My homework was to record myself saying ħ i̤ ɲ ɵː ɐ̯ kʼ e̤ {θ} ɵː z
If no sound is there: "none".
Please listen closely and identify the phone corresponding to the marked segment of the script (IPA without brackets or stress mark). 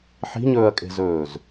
z